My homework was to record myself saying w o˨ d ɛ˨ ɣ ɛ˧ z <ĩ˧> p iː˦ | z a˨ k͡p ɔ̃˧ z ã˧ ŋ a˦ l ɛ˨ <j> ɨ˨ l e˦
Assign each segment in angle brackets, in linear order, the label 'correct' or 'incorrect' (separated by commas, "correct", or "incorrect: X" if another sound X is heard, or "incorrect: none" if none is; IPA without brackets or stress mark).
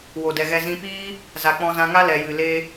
correct, correct